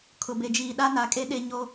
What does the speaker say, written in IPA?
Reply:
kʰʊ˨be˨d͡ʒiː˨ ɗa˦na˨˦kʼe˦ ɗe˦ ɲo˦

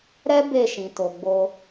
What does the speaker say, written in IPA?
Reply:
ɾɛ˦ be˦˨ʃĩ˨to˨ɡ͡bo˧

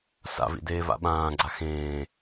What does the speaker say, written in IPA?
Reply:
sa̰vḭdeːva̰ ɓãːɡ͡ǀa xẽː

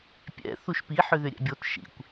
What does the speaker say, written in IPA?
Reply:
pʲɛ̰ θuʃpi ħʏðʏɾʲɛ̰bʲot ʃḭkʷ

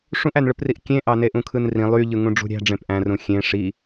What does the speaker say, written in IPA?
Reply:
ʂũʔænɭɯpriʔ kʲẽʔɑneʔ ũkʰɯnrĩ lˠy ʎɯŋũɖ͡ʐṳɾʲæ̤ ɖ͡ʐẽpʔæ̃rũ xʲẽ ʂi

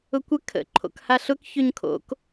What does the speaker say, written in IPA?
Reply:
ʊkʷə kʰə̰ ǃʰo̰khaɬʊk çøɲkʰo̰k

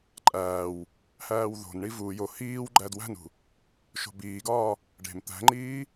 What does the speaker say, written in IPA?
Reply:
ǃʼæːw | hæːwðo̤nɳi vu jo hiːw ɡ͡ǃædwæ̤nṳ | ʃo̤biːɡɒː | ɖe̤m t̪æ̤ŋ͡ǃiː

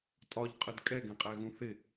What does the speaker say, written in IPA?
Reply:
tʼɒʎqʼəd kʼɛɡɛ̃qʼæɣũ θɪ

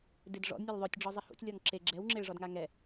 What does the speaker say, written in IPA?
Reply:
dɪd ʐɔ̰dnʲolʲ ðˤotʲɖ͡ʐɔzˤɪ hṵtʲlʲɔŋ ǁe ɡ͡ǁɛwŋ͡ǁeɭʐɔdŋa ŋɛ

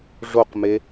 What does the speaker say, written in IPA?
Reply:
ʐoqme

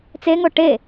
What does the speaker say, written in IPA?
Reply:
t͡seŋo ʈe

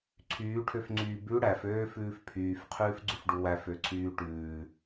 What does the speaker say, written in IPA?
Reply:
ǀʰyːʈʰøfŋ͡ǀyː bʉ ɽæføːfʉːf pʰyːfqʰʉːfɡ͡ǀʉfɖu wæføǀʰyː ʈʉː

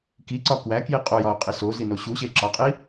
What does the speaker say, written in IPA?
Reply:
kiǀɒ kwækji qʼojɒo̯qʼi sozino ɕuɕe ǁɒqʼi

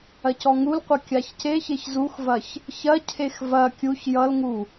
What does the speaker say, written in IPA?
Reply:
ɐcɔŋulqʷɐ kʲaçceçeç zuxvɐç | çɐcʰex vɐ kʲuç jʌlŋu

